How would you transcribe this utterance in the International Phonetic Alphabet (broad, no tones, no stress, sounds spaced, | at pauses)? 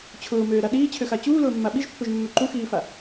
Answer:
t͡ɕʰ ʊː m øː ɾ a ɗ iː t͡ɕʰ ø x a t͡ɕ uː l ʊː mː a ɓ i ʒ pː ø ʒ mː ø ǃ u x iː f a